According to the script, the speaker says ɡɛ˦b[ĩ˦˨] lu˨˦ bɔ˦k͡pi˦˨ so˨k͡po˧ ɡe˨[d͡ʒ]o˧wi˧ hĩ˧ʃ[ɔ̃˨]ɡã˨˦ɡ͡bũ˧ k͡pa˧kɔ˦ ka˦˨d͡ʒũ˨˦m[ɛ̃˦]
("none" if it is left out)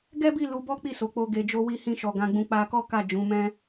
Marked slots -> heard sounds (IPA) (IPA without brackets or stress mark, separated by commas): i˦˨, d͡ʒ, ɔ˨, ɛ̃˦